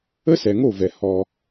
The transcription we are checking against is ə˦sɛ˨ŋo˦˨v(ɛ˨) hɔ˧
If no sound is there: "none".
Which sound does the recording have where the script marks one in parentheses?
ɛ˨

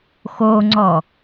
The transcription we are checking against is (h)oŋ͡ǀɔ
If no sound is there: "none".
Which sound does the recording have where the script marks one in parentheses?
x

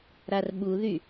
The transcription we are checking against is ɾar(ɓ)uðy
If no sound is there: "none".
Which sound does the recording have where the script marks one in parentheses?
ɓ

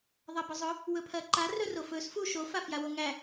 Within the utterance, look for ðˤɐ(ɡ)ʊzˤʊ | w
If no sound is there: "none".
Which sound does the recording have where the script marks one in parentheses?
b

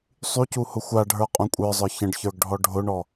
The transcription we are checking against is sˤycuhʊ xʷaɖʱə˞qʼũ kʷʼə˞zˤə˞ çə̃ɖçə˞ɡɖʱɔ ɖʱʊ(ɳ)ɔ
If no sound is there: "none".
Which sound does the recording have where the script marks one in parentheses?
ɳ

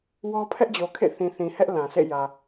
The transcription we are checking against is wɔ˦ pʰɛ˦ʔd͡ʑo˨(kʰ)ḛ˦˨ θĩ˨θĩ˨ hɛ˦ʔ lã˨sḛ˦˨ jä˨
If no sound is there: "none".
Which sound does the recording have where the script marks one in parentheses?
kʰ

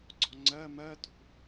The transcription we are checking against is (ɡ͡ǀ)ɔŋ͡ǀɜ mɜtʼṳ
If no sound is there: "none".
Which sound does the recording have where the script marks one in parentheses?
ɡ͡ǀ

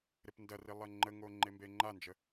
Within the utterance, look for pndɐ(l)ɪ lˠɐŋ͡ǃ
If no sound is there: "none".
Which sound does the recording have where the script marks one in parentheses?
r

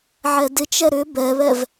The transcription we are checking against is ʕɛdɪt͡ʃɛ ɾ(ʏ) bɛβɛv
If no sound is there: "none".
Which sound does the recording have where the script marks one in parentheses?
ʏ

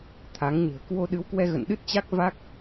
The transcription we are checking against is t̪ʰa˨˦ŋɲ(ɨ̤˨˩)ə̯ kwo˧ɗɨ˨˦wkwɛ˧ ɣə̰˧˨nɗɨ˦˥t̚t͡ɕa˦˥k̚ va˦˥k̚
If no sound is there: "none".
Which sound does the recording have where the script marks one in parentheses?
ɨ̤˨˩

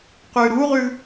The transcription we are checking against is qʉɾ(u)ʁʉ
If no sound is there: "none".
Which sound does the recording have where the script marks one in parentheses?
u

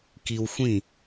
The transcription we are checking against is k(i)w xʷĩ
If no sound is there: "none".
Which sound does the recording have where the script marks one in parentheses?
i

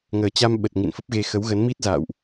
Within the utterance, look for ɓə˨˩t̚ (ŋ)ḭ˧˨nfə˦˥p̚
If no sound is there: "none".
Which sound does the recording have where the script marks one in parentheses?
ŋ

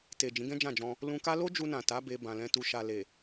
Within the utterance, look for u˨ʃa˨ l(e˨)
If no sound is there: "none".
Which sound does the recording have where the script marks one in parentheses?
e˨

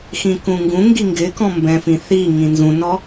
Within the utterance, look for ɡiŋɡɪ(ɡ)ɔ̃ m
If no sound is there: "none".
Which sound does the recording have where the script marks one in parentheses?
k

